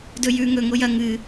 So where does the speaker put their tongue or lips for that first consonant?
tongue tip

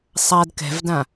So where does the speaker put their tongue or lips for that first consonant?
tongue tip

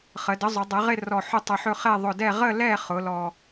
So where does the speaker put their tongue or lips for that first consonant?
uvula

